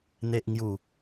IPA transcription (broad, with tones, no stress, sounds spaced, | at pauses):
n̪ e˨ ʔ ŋ j u˨˩